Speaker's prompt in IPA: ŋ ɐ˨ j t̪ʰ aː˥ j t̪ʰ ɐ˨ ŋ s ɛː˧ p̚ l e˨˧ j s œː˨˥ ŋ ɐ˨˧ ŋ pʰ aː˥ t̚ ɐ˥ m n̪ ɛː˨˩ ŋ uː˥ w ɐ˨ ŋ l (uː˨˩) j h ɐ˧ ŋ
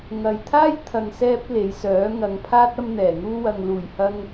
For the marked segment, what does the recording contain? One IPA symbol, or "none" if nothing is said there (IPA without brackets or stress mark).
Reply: uː˨˩